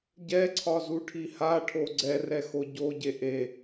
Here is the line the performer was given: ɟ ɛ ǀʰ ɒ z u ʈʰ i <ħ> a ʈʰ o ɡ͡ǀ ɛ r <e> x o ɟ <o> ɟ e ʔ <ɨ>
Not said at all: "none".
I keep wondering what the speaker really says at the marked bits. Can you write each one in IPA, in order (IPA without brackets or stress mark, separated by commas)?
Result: h, ɛ, o, e